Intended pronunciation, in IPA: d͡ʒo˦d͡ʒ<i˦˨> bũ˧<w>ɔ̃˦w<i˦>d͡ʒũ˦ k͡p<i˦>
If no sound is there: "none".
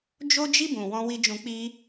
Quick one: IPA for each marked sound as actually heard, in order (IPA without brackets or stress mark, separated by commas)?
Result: i˦, w, i˦, i˦